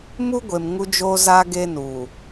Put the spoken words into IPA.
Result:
m u˦ ɡʷ e˨ m ŋ u˦ d͡ʒ oː˦ z aː˦ ɡ e˦ n uː˨

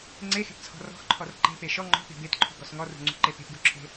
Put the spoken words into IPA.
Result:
ŋ͡ǀ e x e̤ p t͡sʰ ɔ̤ r ɔ̤ x ǃʰ ɔ r ǃ e̤ p e ʃ ɔ ŋ͡ǃ ɔ̤ p e̤ b e t ǃʰ ṳ ɡ ɔ s ŋ ɔ r ṳ ŋ͡ǀ ṳ ǃ e p e̤ p ɡ u ǁʰ e̤

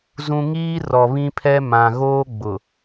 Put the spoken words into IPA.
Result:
z ũ˦ ŋ iː˦ r ɔ˨ β ĩ˦ pʰ ɛ˦ m ã˨ ɣ oː˦ ɡ͡b ʊ˨

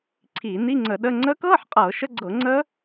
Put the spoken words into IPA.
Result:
ǀʰ iː˧˩˧ n i˧˥˧ ŋ͡ǀ ə˧˩˧ ɗ ə˧˥˧ ŋ͡ǀ əː˦˥ k ɤː˧˥˧ ħ qʼ ɤː˧˩˧ ʃ ə˧˥˧ ɡ͡ǀ ɤ˧˩˧ ŋ͡ǀ əː˦˥

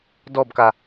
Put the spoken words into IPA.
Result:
d ɔ b k a

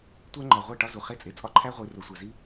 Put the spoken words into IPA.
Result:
tʷ æ˦ ŋ͡ǃ ɒ˨ ʁʷ æ˦˨ ʈ ɒ˦ z u˨ χ e˦˨ t͡sʼ e˨ t͡sʼ ɒ˦ ǃʰ æ˦ ʁʷ i˨˦ r o˨ sʷ æ˨ z i˦

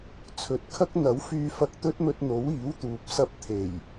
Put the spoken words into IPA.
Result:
t͡sʰ ɵ˨˥ t̚ kʰ ɐ˥ k̚ n̪ ɐ˨˥ w f yː˧ f ɐ˧ k̚ t̪ ɵ˥ t̚ m ɵ˧ t̚ n̪ o˨˥ w iː˨˥ w t̪ uː˨ p̚ s ɐ˥ p̚ t̪ʰ e˨˩ j

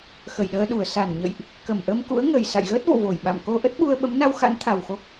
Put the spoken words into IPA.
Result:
x ə˧˩ j ɗ əː˧ ɗ u˧˩ ə̯ s a˧˩ n ɲ ə̰˧˨ j ʔ | k ə˧˩ m ʔ ə˧ m k ṵ˧˥ ə̯ ŋ ə˨˩ j s a̰˧˨ j ɣ əː˦˥ t̚ v o̰˧˨ v o˧˩ j ɓ a̰˧˨ m k o˧ ʔ ə˦˥ t̚ ɓ u˧ ə̯ ɓ ə˨˦ m n a˧ w x a̰˧˥ n t̪ʰ a˨˩ w x o˦˥ k̚

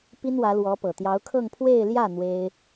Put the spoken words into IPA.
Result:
p i˥ n w ä˧˥ l w ɔ˧˥ p ɤ˨˩ t̪ j ɑ˧˥ ʊ̯ kʰ ɤ˥˧ ŋ pʰ w e˥˧ ɪ̯ l j ä˥˩ n̪ w e˥ ɪ̯

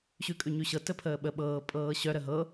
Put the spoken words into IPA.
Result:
ɕ ʉ kʼ ʉ ɲ ʉ ɕ ɤ t ə pʰ əː ɓ ə ɓ ɤː pʼ ɤː ɕ œ ɾ ə ɦ ɤ

